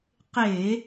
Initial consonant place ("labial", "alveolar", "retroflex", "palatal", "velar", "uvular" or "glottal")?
uvular